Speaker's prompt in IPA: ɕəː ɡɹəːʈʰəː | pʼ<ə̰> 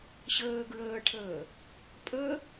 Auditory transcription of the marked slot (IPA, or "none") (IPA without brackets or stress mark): ə